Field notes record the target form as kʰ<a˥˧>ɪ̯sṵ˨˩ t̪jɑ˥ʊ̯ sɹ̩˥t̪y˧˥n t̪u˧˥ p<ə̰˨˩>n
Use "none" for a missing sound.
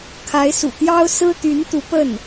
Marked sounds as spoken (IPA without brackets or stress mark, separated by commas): a˧˥, ə˥˩